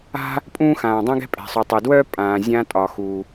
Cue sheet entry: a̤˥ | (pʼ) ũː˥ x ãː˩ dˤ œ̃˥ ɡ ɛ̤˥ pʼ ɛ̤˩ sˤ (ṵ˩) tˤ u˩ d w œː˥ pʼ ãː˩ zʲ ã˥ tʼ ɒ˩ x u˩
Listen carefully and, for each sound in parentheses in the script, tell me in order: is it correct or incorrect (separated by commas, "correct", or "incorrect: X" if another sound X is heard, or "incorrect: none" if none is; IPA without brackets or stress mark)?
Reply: correct, incorrect: u˩